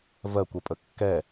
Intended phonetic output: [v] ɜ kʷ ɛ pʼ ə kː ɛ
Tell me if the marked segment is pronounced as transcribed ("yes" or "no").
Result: yes